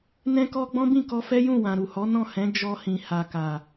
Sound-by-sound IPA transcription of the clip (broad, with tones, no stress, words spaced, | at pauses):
nɛ̃˦kɔ˦ ɡ͡bɔ̃˦bĩ˦˨kɔ˧fɛ˦ jũ˦˨wã˨ɾu˨hɔ˨˦ nɔ̃˦˨hɛ̃˨˦ d͡ʒɔ˧hĩ˨ ha˨ka˨